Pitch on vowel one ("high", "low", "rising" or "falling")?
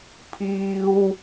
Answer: high